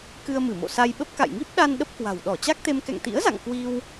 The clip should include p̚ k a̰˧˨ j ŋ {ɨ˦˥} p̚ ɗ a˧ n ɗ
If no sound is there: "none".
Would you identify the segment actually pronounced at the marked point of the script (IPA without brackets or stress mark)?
i˦˥